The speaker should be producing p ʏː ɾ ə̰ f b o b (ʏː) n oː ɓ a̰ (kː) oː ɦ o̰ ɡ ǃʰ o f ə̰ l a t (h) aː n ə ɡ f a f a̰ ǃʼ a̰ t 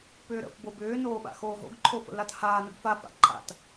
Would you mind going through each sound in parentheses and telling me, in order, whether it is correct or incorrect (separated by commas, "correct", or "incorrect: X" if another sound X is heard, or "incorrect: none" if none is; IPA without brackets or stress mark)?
correct, incorrect: x, correct